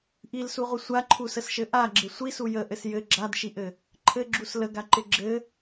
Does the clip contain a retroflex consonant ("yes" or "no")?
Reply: no